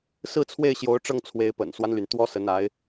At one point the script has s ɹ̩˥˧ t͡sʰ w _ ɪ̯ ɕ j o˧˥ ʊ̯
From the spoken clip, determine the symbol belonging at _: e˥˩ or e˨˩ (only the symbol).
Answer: e˥˩